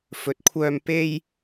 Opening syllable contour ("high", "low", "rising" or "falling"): low